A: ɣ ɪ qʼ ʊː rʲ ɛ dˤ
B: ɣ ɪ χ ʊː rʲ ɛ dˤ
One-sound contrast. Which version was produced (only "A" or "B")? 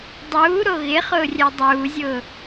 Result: B